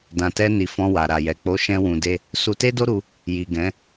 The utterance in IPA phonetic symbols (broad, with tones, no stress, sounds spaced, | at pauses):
d ã˨ t ɛ˧ n i˨ f ɔ̃˧ w a˨ ɾ a˨ j ɛ˨ k͡p o˨˦ ʃ ɛ̃˦ w ũ˧ d e˦ | s u˧ t e˦ d o˦ ɾ u˧ | j i˨ ɡ ɛ̃˨˦